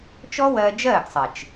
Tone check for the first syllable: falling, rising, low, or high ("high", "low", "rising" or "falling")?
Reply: high